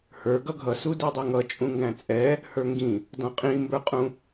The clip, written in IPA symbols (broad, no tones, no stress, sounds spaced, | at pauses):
h ə˞ ɡ ʌ ɡʱ ʌ s u d i dˤ i ŋ ʌ t͡ʃʼ ũ ŋ ɡ æ̃ t͡sʼ ɛ | h ə˞ ŋ ɡ ĩ | d ɔ̃ qʼ ĩ m b ə˞ qʼ ũ